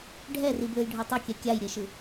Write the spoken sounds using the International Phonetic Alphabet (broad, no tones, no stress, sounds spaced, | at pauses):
ɖʱ ɛ r i b l ɯ j ɖʱ o tˤ ʌ kʲ ɛ kʲ a j ɾʲ e ʃ ɯ